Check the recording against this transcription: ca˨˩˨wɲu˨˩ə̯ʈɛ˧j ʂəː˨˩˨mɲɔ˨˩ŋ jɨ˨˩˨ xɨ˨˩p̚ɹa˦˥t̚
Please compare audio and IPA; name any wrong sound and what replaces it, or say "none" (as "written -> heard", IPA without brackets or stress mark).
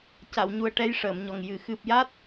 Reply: ɹ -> j